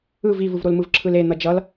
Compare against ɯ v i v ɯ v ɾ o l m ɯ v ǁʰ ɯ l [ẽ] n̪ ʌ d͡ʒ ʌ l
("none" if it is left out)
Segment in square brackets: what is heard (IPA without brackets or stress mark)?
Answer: e